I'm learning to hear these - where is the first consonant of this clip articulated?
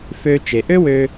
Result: lips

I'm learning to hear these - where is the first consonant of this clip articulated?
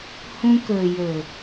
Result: throat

